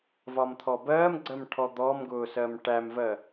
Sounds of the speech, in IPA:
v ɒ m t̪ʰ ɔ b ɜː m ɡ͡ǀ ɜ m ʈʰ ɔ d̪ ɔ m ɡ ʊː s ɜ m ʈ æ m v ɜ

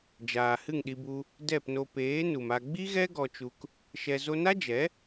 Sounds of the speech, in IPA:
d͡ʒ aː˨ h ɨ˦˨ ŋ ɗ i˧ b u˧ | d ɛ˦˨ p n o˧ p eː˨˦ n u˨ m a˧ ɡ͡b i˦ ɣ ɛ˦ ɡ ɔ˧ t͡ʃ u˧ k | ʃ ɛ˧ z o˧ n a˦ d͡ʒ ɛ˨˦

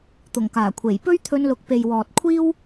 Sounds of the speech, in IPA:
t̪ ʊ˨˩ ŋ k aː˨˩ kʷʰ e˨˩ j p ɵ˥ ɥ t̪ʰ ɵ˧ n l ʊ˨˥ k̚ p e˨ j w ɔː˨ t̚ kʷʰ iː˥ w

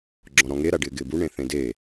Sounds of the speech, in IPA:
ɡ͡ǁ ɔ̃ ɾ ɔ̃ ŋ e ɾ a ɖ ɪː ɡ ɪː b u ɳ ẽ θ ẽ d e

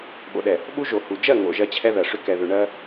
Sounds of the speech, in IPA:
ɓ o̰˨ ɗ ɛ˨ | ɓ u˦ ʒ o˨ h u˨ d͡ʒ ɜ˦˨ ŋ o̰˨ ʒ ɜ˦ t͡ɕʰ ɛ˦ ð ɜ˨ ʂ ʏ˦ k ɛ˨ ð ʏ˨ ɳ ɜ˦

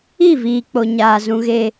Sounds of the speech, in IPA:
i˦˨ v iː˨ k͡p o˨ ɲ aː˨ z ũ˨ ɣ e˨

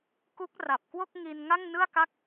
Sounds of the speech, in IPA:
k u˦˥ k̚ r a˨˩ p̚ k w o˥˩ k̚ ŋ i˧ n ŋ a˥˩ ŋ n ɯ˥˩ a̯ k a˥˩ k̚

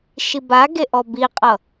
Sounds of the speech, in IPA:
ʃ i b a ɡ e ʔ ɔ b i qʼ ʌ

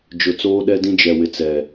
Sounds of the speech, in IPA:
d͡ʒ ʊ˨ t͡s oː˦ ɗ ɛ˦ d ĩ˦ d͡ʒ ɛ˨ w ɪ˨ t͡s ɛ˨

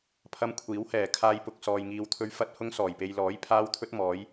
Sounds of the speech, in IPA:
pʰ ɐ˧ m kʷʰ iː˨˥ w h ɛː˨˩ kʰ aː˧ j p ʊ˨ k̚ s ɔː˨ j ŋ iː˨ w t̪ʰ ɵ˧ ɥ f ɐ˧ t̚ h ʊ˧ ŋ s ɔː˨˩ j p e˨ j l ɔː˨˥ j pʰ aː˧ w t̪ʰ ɵ˧ t̚ m ɔː˨˧ j

